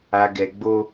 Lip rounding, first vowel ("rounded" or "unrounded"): unrounded